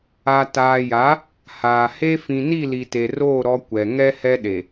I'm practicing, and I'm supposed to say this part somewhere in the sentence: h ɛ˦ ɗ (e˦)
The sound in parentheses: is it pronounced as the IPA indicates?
no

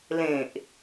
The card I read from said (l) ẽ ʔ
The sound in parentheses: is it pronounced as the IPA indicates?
yes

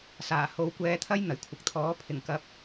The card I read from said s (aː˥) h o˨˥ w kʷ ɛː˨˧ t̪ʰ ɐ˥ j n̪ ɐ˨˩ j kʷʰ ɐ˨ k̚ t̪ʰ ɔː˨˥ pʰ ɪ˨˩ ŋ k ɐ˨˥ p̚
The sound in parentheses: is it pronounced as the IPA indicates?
no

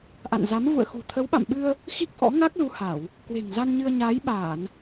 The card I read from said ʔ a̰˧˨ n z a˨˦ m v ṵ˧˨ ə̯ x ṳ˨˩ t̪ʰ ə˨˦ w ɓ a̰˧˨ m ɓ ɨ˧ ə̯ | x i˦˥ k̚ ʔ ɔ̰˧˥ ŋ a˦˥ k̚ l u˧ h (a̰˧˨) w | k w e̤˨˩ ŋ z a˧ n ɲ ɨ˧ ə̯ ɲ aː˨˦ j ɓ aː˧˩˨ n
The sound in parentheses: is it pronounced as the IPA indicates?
no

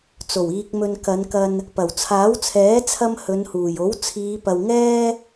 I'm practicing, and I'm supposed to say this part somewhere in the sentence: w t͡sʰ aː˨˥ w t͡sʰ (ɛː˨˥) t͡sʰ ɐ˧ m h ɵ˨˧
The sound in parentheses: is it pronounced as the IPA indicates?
yes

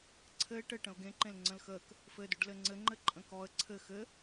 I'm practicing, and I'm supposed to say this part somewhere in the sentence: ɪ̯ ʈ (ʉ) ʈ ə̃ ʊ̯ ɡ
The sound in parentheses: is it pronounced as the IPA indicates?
no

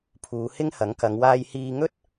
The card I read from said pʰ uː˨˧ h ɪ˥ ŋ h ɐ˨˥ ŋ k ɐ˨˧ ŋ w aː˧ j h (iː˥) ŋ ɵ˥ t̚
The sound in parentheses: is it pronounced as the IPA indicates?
no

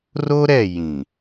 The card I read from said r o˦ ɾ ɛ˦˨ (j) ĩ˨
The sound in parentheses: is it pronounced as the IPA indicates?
yes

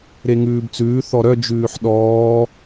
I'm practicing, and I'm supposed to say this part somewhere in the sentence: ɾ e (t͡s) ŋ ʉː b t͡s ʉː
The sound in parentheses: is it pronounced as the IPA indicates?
no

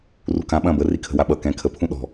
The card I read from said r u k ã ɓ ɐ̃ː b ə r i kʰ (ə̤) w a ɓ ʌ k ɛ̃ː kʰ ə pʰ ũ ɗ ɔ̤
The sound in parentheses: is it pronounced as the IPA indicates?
yes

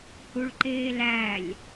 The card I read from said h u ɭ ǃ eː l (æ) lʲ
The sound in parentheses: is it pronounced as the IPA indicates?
yes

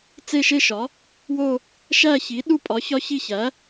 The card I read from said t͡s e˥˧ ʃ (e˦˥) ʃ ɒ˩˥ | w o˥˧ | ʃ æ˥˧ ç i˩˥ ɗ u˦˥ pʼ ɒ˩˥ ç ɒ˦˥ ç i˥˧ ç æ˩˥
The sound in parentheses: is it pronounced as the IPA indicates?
no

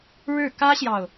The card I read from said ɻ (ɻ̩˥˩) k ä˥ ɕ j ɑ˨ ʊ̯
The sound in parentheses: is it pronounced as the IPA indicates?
yes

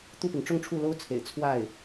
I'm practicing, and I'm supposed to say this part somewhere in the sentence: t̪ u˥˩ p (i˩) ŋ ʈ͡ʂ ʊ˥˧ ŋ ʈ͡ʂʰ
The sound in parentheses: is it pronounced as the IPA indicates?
yes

